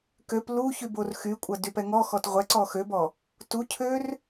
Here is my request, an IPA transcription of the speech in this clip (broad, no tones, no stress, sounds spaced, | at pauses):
k ø p l u ç y b o r x y kʷʼ ɐ d y p ɛ ŋ ɔ x ɔ t ʁʷ ɛ ǀ ɔ x ø b ɔ | t u cʰ ø r